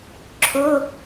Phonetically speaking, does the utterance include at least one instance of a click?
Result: yes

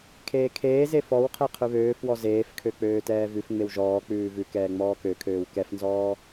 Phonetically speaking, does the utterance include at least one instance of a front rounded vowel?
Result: yes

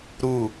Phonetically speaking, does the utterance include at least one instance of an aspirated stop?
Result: no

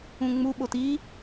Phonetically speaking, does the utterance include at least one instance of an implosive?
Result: yes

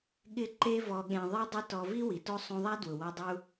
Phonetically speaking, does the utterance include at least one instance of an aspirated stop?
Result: no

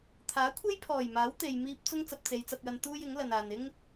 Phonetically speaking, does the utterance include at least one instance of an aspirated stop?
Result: yes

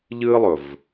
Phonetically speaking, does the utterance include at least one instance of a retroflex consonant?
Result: no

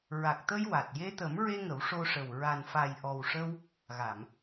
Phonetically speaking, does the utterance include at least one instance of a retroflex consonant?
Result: yes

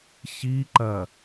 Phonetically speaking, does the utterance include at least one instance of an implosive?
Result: no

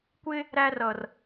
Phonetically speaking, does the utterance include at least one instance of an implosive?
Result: no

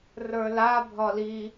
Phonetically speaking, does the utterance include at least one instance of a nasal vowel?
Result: no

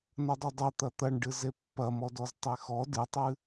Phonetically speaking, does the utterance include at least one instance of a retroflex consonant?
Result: yes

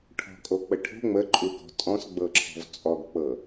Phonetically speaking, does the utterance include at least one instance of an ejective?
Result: yes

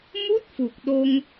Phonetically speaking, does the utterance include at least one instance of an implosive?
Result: yes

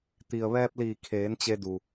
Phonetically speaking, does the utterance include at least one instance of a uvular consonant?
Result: no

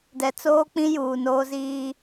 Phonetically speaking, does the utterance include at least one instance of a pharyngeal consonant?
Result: no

